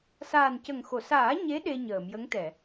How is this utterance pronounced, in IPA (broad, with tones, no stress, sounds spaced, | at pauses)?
s aː˨˩ n c ə˨˩ ŋ x o˨˩˨ s aː˨˩˦ ɲ e˧˥ ɗ e˧ ɲ əː˨˩˨ m j ə˧˥ ŋ t̪ ɛ˨˩˨